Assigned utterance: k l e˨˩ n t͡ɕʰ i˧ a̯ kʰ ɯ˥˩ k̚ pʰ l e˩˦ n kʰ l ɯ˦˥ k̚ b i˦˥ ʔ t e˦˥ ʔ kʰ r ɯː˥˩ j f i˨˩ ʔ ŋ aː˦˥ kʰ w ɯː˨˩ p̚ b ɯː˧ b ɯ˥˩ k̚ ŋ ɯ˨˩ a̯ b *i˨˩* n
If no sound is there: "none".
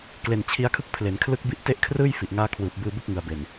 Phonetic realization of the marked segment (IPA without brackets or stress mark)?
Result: e˨˩